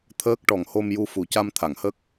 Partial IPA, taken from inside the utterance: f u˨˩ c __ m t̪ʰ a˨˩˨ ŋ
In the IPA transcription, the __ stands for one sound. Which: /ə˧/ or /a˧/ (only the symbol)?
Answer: a˧